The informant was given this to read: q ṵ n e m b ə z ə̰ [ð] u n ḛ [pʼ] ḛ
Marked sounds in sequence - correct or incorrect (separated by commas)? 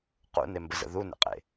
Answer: correct, incorrect